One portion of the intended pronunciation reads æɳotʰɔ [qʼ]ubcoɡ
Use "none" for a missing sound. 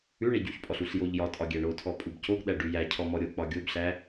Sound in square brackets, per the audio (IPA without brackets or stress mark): pʼ